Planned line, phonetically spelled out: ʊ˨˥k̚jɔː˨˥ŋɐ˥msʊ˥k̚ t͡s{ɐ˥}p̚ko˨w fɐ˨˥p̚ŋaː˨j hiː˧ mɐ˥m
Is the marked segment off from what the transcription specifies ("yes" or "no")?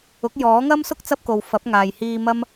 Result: no